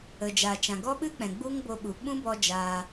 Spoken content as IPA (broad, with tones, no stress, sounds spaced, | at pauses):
ə˨ d͡ʒ a˨ t͡ʃ ã˨ ɡ ɔ˦ ɓ ɨ˦ k͡p ɛ̃˨ ɡ͡b u˦ ŋ b o˧ ɓ u˨ ɓ ũ˦ b ɔ˧ d͡ʒ aː˧